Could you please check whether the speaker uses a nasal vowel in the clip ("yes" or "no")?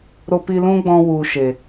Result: yes